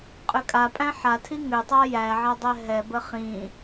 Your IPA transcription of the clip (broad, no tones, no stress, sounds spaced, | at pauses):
qʼ ʏ kʼ a pʼ æ̃ ħ a tʰ i ŋ ʏ tˤ a j æ ʕ a dˤ ɛ ɦ ɛ b ə χ ĩ